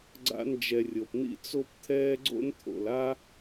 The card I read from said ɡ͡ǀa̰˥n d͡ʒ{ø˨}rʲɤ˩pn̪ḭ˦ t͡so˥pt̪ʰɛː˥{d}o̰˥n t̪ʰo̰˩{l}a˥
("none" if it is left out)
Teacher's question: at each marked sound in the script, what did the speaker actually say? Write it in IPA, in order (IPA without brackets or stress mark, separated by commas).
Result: ɛ˨, ɡ͡ǀ, l